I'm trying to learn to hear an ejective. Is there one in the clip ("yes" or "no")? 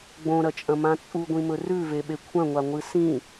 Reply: yes